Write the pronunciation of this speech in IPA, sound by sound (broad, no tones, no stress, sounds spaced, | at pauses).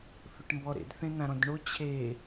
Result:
θ ʊ ʈ m b ɔ ɾ ḛ d θ ẽ n̪ ã ɾ ɔ̃ d ɳ o t͡ɕʰ e